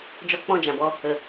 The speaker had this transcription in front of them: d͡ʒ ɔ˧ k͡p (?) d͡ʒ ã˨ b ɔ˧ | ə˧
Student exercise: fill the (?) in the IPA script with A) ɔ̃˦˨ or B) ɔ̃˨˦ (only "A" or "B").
A